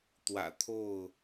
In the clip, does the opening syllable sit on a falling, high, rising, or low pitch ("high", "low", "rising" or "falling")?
low